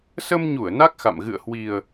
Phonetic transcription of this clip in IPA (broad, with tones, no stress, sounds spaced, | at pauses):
s ə˧ m ɲ u˧˩ ə̯ n a˦˥ k̚ x a̰˧˨ m ɣ ɨ̰˧˨ ə̯ h w i˨˩ ə̯